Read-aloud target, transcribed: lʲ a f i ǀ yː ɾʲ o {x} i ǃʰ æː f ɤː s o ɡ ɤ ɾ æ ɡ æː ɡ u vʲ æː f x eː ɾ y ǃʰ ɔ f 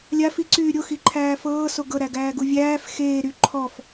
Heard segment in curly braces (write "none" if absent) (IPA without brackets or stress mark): x